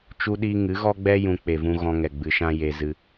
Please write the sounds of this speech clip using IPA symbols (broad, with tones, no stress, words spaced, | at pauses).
t͡ʃu˦ɗiː˦ ŋɨ˨˦ɣɔ˦ɡ͡bɛ˦ jũ˧ k͡pe˨vũ˧ ɣɔ̃˧ŋɛ˨ ɡ͡bɨ˧ʃã˦ je˧zɨ˧